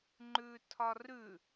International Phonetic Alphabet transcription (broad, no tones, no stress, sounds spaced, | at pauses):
ŋ͡ǃ ʉː tʰ ɒ r ʉ